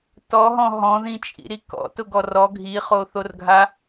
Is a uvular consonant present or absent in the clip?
present